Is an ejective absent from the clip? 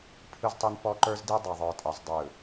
no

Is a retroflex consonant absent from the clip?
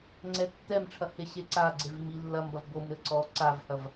no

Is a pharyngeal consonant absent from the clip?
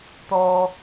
yes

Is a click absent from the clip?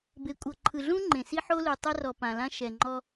no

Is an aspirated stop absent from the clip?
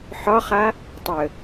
yes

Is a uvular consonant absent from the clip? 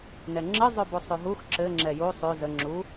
yes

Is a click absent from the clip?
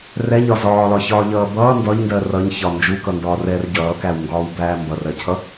yes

